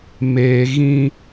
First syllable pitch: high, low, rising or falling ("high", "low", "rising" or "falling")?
low